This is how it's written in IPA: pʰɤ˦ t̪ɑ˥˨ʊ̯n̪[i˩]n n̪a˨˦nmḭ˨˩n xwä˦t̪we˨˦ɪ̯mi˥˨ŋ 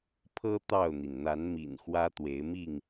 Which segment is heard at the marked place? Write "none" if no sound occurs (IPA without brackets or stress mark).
i˩